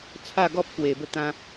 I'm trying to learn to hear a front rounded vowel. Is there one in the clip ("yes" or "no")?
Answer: no